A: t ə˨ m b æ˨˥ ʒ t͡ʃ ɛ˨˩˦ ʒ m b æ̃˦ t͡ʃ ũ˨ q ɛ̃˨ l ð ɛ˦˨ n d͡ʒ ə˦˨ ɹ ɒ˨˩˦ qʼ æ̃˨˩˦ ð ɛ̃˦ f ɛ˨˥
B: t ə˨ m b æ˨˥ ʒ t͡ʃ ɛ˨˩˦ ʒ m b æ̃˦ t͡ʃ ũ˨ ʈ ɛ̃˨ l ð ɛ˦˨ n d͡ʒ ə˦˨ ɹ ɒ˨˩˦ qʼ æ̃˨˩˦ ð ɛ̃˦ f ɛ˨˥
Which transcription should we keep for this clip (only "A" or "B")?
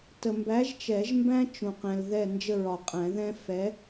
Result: A